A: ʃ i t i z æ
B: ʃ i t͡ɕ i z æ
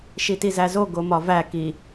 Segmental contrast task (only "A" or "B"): A